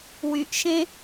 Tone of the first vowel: low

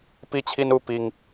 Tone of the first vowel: high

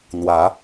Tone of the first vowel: rising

